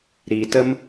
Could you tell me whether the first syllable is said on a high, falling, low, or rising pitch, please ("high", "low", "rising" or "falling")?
low